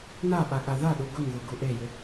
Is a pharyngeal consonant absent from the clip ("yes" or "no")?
yes